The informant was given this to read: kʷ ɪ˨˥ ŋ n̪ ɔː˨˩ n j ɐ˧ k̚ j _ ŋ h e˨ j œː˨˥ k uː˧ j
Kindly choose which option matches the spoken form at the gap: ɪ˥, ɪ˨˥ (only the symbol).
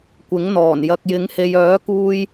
ɪ˨˥